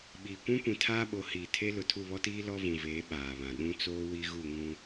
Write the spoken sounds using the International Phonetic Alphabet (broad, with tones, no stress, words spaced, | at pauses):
ɓiː˨kʷũ˦kʷĩ˨ tʰaː˦ɓo˨˦ hiː˨tʰe˦ lʊ˨tʰu˦˨βɔ˦tiː˦ lɔ˦vũ˨veː˨˦ ɓaː˨βã˨ ɗũ˦t͡soː˦ wi˦ɣu˦˨ŋũ˦